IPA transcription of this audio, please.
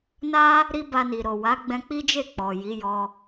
na˦ | ɾi˦ba˧ni˨ ɾo˨wa˨˦ ɡ͡bɛ̃˧k͡pi˦d͡ʒe˦˨ k͡pɔ˨ ji˨˦jɔ˧

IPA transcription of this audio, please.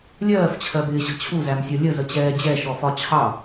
lʲɜːft͡ɕʰɜbɪːɕə̤ t͡ɕʰuzæmsʲʌ lʲəzət͡ɕɛː d͡ʑɛʃɔfɒ t͡ɕʰɑ

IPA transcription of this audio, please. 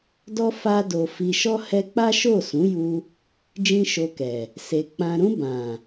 dɔ˧ fa˧do˨ fi˨ʃɔ˧ hɛ˧k͡pa˦ʃo˦˨ sũ˨˦ju˧ | d͡ʒĩ˦ʃo˧kɛ˨ | se˨ k͡pã˨ɾũ˧ bã˨

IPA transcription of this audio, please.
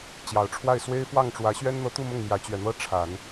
t͡ɕjɑ˨˩ʊ̯ʈ͡ʂʰwa˥˩ɪ̯ swe˥ɪ̯fwɑ˥˩ŋʈ͡ʂwä˧˥ ɕɥɛ˥nn̪ɤ˧˥t̪u˥˧ mʊ˥˩ŋmjä˧˥t͡ɕɥɛ˨˩n̪ɤ˥ ʈ͡ʂʰa˨˩˦n

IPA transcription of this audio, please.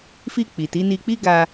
fi˧ k͡pi˨ti˨˦ ni˧k͡pi˦ ɡa˧

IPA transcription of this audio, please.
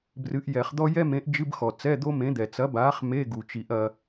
brɨ˨˥ʔjɛ˨˩˦χd̪ɔ˥ jɛ˥mẽ˨˥ʔ d͡ʒɨ˧˥˧bxɔ˩ t͡sɛ˧˥˧d̪o˥mẽ˨˥ d̪ɛ˩t͡sɐ˨˥baː˨˥χ me˧˥˧ ɡu˩t͡ʃi˨˩˦ʔɐ˧

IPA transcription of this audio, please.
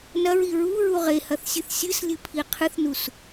nɐɹi ɹuɹu ʁehɐθsʲɨθ sʲɨslʲɨpʰi qʰɨθnus

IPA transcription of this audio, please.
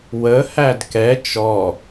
wəhæd kɛ t͡ʃɔ

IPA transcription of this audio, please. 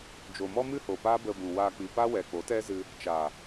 d͡ʒo˨mɔ˦mɨ˦ho˨ pa˦bə˧bũ˨ wa˧ k͡pi˨pa˦wɛ˨ k͡po˨˦tɛ˦zɨ˧ | t͡ʃa˨

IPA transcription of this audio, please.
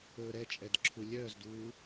ɵːɾɛt͡ʃʼɛd ǁʰulʲœːzduː

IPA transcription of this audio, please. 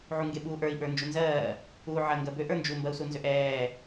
ʕuŋɡeɓuːʔə˞i̯ ɓə˞nd͡ʒunzɜː | uːʕɜŋɡɜbøʔ ə˞nd͡ʒu mbɜu̯sunzøʔɛː

